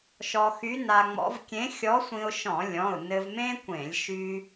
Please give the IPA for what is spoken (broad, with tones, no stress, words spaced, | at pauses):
ʃɔ˧xy˧˥na˧ŋ͡mɔ̰˧˥v kʲẽ˧˥xʲɔ˧˥sʷĩ˧ʊ̯ʃɔ̃˧˩˧ lʲɔ̃˩˧˩ʊ̯ nɘ˧vmẽ˥kʷẽ˧˩˧lʲ ʃy˧